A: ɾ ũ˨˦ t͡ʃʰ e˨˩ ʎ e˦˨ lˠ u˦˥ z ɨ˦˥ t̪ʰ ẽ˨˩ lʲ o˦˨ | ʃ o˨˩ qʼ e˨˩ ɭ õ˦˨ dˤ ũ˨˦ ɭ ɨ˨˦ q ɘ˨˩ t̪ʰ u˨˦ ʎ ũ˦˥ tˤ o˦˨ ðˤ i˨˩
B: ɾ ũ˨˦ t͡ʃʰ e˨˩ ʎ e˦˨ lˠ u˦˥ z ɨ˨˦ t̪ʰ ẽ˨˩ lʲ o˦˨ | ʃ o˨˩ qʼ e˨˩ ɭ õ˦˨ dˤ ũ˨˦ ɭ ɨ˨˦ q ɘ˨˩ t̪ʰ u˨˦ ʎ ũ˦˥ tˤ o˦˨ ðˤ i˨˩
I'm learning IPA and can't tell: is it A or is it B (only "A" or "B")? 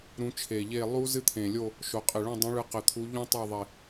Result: A